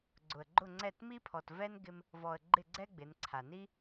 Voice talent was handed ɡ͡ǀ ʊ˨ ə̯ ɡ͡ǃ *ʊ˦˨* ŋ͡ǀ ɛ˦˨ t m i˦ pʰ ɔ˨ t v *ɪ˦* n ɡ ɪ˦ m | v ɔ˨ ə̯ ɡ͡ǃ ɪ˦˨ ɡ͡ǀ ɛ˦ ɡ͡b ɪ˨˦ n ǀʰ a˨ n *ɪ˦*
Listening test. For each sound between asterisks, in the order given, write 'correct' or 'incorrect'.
correct, incorrect, incorrect

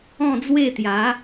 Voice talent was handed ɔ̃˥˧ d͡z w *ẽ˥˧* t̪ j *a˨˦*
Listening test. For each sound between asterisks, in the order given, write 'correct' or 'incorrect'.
incorrect, correct

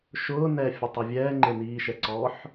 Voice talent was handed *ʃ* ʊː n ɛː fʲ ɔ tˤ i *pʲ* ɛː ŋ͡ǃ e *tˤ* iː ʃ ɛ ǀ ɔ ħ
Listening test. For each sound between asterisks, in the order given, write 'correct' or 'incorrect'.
correct, incorrect, incorrect

